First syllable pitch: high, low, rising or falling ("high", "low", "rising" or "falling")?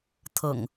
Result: low